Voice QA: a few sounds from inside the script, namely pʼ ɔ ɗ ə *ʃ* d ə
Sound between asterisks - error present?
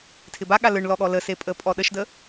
no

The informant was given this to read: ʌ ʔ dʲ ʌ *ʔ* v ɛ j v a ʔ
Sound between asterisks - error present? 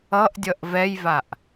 no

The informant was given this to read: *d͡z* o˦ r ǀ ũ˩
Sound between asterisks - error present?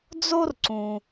no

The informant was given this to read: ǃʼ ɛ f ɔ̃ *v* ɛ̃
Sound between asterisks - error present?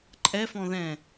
yes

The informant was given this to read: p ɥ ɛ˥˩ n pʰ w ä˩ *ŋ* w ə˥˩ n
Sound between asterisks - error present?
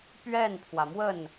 yes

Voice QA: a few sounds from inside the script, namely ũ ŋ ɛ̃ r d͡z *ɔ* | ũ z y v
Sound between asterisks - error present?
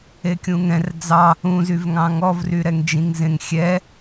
yes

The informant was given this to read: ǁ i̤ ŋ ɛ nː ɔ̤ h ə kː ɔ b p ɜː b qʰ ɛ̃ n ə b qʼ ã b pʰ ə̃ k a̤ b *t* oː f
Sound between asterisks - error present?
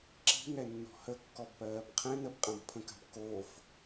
yes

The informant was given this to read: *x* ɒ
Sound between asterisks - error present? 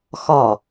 no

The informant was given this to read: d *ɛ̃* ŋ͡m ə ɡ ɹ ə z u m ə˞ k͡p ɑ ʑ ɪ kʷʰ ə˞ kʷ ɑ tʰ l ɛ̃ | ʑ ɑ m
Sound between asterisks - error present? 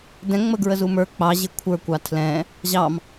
no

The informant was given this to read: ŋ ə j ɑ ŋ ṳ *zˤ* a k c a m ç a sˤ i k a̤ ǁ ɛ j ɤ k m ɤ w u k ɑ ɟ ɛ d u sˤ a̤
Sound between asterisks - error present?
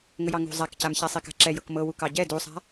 no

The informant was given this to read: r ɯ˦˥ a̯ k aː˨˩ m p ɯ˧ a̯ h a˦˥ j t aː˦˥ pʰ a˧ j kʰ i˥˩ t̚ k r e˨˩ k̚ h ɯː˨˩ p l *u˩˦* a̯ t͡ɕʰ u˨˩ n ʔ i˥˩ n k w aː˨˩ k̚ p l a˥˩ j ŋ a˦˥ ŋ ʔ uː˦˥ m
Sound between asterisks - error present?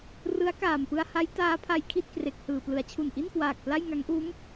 yes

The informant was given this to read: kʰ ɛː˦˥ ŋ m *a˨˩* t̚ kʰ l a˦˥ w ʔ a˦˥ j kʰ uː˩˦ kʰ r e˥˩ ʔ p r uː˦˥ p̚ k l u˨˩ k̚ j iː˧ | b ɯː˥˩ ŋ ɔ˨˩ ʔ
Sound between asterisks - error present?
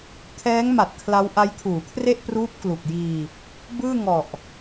no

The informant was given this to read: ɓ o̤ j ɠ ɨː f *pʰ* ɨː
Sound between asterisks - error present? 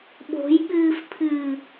no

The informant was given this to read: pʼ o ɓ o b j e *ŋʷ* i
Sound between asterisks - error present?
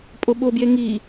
yes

